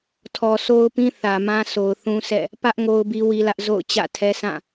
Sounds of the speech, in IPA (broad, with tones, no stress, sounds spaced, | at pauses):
tʰ ɔ˨ sʰ o˦ ʊ̯ p ĩ˦ θ ä˨ m ã˦ sʰ o˨ ʊ̯ θ ũ˦ s ɛ̰˦˨ | p ä˦ ʔ ŋ o˦ ʊ̯ b i˦ w i˦ l ä˦ ʔ z o̰˦˨ ʊ̯ t͡ɕ ä̰˦˨ tʰ ɛ˦ sʰ ã˦˨